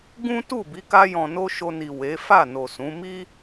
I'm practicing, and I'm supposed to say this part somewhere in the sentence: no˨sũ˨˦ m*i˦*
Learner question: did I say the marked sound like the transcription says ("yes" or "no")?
yes